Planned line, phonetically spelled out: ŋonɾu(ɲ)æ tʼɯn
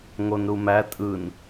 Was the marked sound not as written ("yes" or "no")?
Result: yes